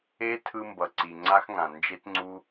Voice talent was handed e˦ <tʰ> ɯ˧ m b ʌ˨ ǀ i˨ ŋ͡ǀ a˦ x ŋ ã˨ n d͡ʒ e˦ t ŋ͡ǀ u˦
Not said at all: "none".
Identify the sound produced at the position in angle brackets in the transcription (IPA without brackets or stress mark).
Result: tʰ